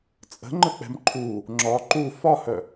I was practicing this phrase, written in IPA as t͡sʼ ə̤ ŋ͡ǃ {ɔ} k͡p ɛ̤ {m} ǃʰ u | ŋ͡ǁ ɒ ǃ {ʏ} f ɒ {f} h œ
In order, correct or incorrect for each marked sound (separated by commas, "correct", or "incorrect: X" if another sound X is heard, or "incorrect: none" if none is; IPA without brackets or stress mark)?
incorrect: ə, correct, incorrect: u, incorrect: none